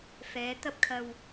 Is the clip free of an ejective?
yes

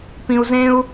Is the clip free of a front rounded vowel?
yes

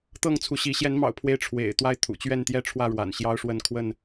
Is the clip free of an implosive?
yes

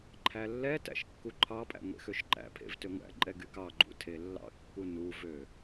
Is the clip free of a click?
no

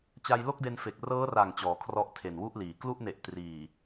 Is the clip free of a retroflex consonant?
yes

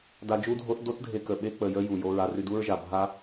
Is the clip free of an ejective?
yes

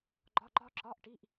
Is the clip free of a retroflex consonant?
no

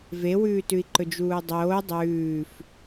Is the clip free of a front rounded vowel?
yes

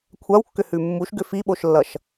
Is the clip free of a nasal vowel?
yes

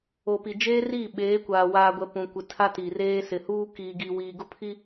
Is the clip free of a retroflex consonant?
yes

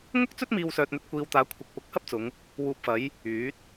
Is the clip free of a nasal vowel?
yes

